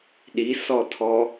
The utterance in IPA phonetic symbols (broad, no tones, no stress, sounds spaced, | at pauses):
ɗ i s ɔ tʰ ɔ